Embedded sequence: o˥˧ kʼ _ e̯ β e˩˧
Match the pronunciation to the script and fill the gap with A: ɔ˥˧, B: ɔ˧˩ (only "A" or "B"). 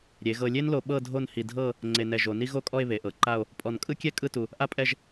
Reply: A